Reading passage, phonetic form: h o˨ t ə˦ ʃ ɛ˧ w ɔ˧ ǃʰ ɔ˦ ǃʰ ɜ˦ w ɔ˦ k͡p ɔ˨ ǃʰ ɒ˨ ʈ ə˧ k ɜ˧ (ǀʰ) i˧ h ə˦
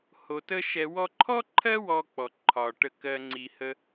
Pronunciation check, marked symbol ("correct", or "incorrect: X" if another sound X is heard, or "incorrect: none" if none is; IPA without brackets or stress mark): incorrect: ŋ͡ǀ